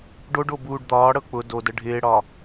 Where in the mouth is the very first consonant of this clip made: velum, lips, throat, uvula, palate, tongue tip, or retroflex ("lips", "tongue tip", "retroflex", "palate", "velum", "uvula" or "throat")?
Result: retroflex